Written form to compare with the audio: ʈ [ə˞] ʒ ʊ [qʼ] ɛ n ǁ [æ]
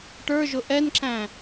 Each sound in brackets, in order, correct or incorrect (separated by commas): correct, incorrect, incorrect